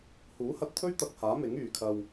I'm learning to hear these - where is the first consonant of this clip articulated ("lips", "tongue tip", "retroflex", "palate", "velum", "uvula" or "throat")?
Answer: throat